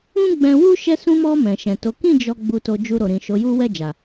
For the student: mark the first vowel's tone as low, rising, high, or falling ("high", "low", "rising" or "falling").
high